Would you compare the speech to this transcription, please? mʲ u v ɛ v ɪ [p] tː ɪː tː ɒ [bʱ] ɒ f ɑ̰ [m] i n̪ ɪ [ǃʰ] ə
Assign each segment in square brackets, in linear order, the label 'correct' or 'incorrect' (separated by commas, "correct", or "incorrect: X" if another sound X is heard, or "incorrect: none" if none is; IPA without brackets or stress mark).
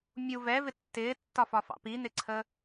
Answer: incorrect: none, incorrect: f, incorrect: p, incorrect: ǀʰ